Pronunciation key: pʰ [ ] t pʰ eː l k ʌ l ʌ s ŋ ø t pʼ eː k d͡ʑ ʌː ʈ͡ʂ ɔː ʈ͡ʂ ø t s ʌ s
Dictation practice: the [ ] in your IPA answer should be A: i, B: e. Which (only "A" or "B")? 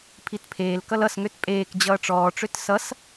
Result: A